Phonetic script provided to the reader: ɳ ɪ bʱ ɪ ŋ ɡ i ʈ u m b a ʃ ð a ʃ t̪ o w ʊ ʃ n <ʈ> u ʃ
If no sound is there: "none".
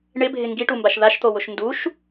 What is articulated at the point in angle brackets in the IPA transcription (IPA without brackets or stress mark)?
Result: d